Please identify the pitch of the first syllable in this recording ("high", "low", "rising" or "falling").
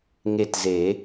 falling